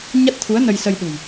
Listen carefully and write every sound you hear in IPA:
ɲ a˦˥ t̚ t̪ʰ u˨˦ ə̯ n ə˧ j s ə˧ j ɗ ṳ˨˩ j

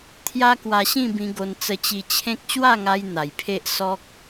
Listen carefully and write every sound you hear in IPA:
t̪ʰ j a˦ k w a˧ ɕ ĩ˥˧ b ĩ˧ ɡ o˧ n t͡s ə˧ t͡ɕ i˧ t͡ɕʰ ẽ˦ k̚ ɕ w a˥˧ ŋ a˧ j n̪ a˨˩ j pʰ e˦ ʔ s ɔ˦ k̚

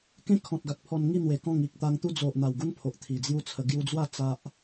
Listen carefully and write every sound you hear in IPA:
k ẽ˦ kʰ ɔ̃˨ t̚ ɡ a˨ k̚ pʰ ɔ˧ n ŋ i˥˧ n̪ w e˨˩ k ɔ̃˥˧ ŋ i˨ k̚ t̪ a˧ ŋ t̪ u˦ d͡z o˨ ʔ n̪ a˨˩ w ɡ u˦ n pʰ o˨ ʔ t̪ʰ i˨˩ d͡z j u˦ t͡sʰ ə˧ ɡ j u˧ d͡z w a˥˧ t͡s a˦ ʔ

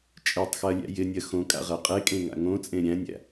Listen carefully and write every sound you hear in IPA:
t͡ʃʼ e tˤ x ɜ lʲ æ̰ j ɪ nʲ ɜ x õ kʼ a̰ ʁ ɜ qʼ e kʼ ẽ ŋ a̰ ŋ õ t͡sʼ ẽ ɾʲ æ̃ nʲ æ̰

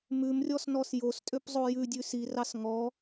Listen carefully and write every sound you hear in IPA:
m ʉ m rʲ ɔ s n ɔ s j o s tʼ ø p zˤ o j ʉ dʲ ʉ s i r ɑ s ŋ ɔ

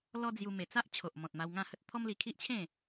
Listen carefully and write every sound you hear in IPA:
l ɔ˦ d͡z j u˧ m e˨˩ t͡s a˦ ʔ t͡ɕʰ o˨ ʔ m ɔ̃˨ t̚ m a˧ w ŋ ã˥˧ h ə˦ t̚ t̪ʰ ɔ˦ m l i˧ kʰ i˦ ʔ t͡ɕʰ ẽ˥˧

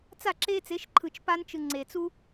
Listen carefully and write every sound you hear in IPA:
t͡s a˦˨ ǁ e˦ t͡s e˨˦ ʃ ǃʰ ɯ˨ t͡ʃ p a˦ n t͡ʃ ɯ˨ ŋ͡ǀ e˨ t͡s u˦

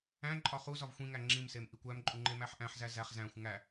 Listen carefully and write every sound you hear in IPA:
æ̃ ǃʼ ɒ χ u z ɒ v xʷ ĩ ŋ æ ŋ͡ǁ ĩ m s e m ʔ i kʷ æ m ǃʼ u ŋ͡ǃ e m æ ħ ʔ æ̃ ħ z æ z æ χ z æ̃ xʷ ŋ æ

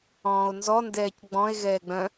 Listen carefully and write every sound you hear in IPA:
ɔ̃ː o̯ n z ɔ n d ɛː c ɡ͡b ɔ̃ e̯ ɣ ɛː ɡ͡b œ̃

